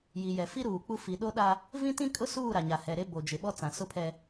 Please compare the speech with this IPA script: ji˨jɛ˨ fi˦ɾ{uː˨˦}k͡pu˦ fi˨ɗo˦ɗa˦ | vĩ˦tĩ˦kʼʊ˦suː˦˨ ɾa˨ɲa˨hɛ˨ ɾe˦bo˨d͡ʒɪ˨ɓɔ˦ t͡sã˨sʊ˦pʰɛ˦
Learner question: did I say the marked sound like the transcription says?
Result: no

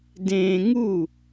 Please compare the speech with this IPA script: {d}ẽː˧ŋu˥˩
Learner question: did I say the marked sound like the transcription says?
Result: yes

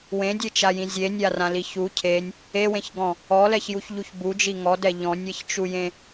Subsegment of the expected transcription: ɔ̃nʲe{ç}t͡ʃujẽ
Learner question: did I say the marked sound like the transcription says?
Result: yes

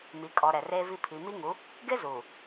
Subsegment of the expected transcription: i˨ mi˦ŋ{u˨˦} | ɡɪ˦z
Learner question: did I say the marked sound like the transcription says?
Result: yes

